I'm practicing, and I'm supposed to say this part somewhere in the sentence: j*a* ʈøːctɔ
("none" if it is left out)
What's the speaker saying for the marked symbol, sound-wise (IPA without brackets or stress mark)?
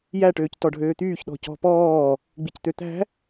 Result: æ